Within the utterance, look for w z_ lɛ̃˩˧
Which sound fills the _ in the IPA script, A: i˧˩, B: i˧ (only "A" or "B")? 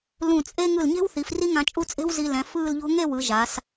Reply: B